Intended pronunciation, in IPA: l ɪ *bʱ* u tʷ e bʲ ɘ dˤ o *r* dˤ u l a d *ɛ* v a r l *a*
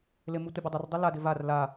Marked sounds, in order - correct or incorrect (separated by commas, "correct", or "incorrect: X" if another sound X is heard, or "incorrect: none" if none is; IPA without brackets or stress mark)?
incorrect: m, correct, incorrect: ɪ, correct